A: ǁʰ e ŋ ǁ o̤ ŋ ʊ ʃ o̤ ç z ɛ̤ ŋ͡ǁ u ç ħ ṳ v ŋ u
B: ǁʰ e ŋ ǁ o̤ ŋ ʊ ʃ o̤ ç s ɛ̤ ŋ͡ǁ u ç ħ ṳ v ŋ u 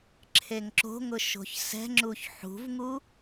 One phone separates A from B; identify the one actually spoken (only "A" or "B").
B